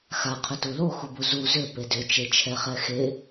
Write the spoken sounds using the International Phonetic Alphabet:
x a qʰ ʏ t u l o x u b u z u z ʏ p e d ʏ t͡ʃ e t͡ʃʰ ɛ χ ɛ x e

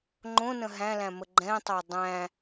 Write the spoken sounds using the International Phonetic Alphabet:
ŋ͡ǃ õ n ə̃ ɦ æ̃ l æ̃ m ə ɡ͡ǃ ɛ̃ tˤ a dˤ æ̃

